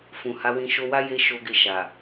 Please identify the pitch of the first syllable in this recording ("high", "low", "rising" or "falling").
low